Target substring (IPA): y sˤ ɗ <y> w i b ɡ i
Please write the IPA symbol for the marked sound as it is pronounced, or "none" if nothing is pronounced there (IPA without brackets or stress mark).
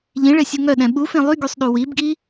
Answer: u